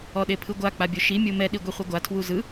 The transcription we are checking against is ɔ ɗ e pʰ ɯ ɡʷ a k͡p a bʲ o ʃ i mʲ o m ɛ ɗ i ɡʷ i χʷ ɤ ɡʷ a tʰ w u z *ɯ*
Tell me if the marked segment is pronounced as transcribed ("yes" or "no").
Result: yes